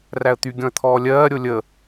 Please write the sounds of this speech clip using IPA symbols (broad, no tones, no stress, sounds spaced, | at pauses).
r æ ə̯ t̪ y ɡʲ ɔ̃ ə̯ t̪ʰ ɔː lʲ ɜː ɾʲ o lʲ ə